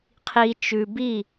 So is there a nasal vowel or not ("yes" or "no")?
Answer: no